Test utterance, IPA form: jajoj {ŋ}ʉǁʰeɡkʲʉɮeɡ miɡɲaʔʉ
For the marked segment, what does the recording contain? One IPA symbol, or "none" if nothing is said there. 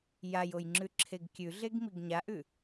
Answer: ŋ͡ǁ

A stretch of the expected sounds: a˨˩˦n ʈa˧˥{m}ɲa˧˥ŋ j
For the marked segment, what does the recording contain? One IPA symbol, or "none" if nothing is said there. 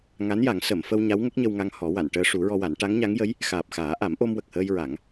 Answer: ŋ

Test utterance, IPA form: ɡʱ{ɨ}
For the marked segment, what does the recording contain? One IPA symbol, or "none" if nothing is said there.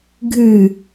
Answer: ɨ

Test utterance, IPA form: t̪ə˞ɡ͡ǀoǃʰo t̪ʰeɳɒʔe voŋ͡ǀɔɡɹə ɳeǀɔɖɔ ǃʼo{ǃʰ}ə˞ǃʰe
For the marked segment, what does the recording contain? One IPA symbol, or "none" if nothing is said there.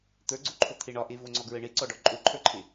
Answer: ǃʰ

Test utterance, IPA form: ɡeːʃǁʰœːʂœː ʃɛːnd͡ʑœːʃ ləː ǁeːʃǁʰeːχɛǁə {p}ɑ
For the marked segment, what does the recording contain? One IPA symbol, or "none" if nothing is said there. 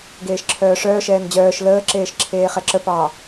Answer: p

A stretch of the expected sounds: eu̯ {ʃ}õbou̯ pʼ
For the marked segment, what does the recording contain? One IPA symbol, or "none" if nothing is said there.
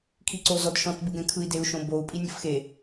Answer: ʃ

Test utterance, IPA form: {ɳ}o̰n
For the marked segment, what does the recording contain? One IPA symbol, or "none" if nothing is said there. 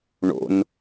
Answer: ɳ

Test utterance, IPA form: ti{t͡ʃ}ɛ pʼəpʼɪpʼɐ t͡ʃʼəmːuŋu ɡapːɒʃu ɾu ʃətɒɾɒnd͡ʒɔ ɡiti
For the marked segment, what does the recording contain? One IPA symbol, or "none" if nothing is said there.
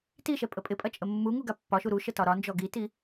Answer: ʃ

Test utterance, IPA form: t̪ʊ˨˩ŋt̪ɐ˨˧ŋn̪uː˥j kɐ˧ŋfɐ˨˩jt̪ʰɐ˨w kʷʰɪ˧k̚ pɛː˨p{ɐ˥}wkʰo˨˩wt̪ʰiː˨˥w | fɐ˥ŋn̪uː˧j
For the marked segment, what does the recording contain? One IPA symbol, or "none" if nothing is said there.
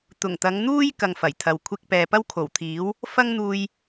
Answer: ɐ˥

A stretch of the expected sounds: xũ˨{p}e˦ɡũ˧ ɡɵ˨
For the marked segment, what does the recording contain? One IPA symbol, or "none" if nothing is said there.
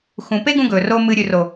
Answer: p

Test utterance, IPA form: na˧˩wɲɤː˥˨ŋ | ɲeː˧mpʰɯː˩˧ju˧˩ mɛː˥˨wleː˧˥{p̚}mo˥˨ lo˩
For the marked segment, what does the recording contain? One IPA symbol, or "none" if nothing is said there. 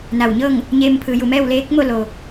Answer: k̚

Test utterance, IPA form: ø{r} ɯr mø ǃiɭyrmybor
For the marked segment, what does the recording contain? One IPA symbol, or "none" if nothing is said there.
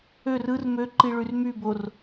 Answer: r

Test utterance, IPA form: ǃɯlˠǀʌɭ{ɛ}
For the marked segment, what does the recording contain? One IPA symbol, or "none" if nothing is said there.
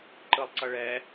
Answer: ɛ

